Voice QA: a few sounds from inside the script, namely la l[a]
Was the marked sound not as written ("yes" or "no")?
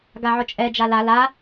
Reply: no